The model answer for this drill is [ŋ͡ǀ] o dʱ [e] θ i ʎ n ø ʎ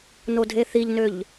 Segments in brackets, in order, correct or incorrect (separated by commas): incorrect, correct